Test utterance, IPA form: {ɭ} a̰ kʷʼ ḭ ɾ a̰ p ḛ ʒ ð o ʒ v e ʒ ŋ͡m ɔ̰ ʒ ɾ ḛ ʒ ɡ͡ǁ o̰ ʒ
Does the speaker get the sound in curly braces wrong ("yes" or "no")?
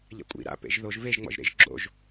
yes